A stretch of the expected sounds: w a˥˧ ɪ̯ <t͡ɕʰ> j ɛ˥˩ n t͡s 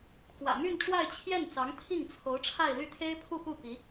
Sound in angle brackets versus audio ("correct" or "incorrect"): correct